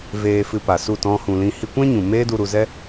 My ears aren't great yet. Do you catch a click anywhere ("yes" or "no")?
no